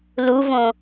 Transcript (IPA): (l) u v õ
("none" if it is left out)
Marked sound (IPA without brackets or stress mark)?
l